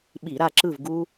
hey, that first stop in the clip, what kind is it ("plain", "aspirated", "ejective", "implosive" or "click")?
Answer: implosive